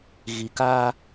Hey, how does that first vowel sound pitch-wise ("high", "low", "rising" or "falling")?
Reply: low